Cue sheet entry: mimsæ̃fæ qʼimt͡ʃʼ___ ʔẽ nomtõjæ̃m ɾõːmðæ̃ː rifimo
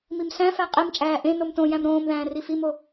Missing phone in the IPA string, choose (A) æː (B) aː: A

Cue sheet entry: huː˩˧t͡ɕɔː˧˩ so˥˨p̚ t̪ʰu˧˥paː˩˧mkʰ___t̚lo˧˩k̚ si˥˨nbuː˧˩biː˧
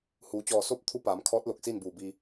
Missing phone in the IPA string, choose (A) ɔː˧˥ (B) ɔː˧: A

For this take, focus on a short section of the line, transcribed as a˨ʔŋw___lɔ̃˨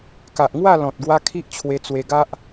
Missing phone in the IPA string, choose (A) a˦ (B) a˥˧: B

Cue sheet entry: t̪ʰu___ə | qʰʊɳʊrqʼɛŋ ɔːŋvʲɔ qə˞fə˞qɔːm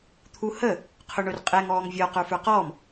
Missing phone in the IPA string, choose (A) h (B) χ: A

